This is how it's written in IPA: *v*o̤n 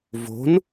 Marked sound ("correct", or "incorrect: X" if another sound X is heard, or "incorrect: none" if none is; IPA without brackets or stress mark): correct